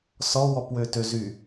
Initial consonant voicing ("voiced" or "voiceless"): voiceless